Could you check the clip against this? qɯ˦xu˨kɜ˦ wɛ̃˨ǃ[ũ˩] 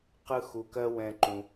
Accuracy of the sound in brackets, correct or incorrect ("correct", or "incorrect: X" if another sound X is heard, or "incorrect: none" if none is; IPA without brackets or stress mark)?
correct